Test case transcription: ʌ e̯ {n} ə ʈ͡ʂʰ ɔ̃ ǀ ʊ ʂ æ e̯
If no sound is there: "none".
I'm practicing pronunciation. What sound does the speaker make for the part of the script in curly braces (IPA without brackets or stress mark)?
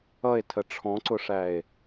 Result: tʰ